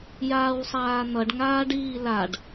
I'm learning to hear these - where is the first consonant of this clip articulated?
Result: palate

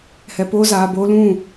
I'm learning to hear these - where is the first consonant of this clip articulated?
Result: throat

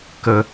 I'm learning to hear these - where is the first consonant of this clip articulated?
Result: velum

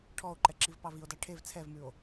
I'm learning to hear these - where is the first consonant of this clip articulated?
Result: retroflex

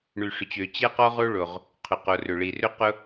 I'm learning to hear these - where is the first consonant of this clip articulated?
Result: retroflex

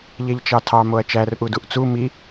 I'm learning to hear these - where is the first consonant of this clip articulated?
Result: palate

